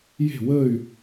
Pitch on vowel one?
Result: falling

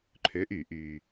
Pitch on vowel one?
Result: rising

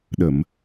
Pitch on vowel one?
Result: low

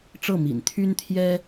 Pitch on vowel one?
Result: falling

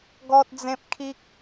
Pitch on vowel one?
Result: high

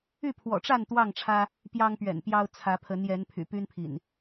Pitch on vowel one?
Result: falling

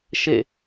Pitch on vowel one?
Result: falling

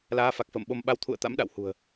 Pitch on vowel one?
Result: rising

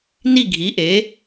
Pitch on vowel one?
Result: falling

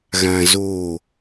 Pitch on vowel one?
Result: low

